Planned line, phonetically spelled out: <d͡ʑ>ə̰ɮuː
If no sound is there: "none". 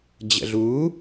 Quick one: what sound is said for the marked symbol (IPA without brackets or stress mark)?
d͡ʑ